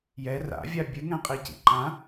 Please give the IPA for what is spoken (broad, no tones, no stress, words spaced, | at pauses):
jɛ ra̰vʲa bʲɨŋɛ̃qʼicḭ ǃã